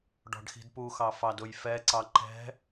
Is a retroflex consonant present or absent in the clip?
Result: present